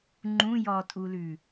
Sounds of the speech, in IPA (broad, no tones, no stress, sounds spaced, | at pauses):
ŋ͡ǃ ũ j ɔ tʼ u l ʉ